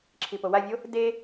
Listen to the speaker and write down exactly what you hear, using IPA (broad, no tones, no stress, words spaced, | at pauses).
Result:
ǁʰipowavʲo | de